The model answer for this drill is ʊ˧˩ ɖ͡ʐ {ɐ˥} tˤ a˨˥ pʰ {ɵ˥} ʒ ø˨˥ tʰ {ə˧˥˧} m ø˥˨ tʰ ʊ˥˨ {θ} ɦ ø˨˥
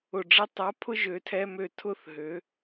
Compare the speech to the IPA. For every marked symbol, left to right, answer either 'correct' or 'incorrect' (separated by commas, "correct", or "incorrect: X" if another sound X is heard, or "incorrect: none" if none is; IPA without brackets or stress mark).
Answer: correct, incorrect: ʊ˥, incorrect: ɛ˧˥˧, correct